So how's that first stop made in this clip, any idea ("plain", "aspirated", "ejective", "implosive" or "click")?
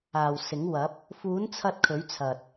plain